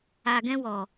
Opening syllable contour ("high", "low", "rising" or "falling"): low